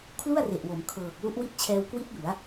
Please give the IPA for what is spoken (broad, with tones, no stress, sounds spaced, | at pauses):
kʰ l u˥˩ a̯ r e˨˩ ʔ w o˩˦ m kʰ ɤː˨˩ k̚ l u˦˥ ʔ w i˥˩ t̚ t͡ɕʰ ɛː˧ w k w i˦˥ t̚ j u˩˦ a̯